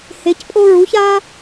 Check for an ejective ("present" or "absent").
present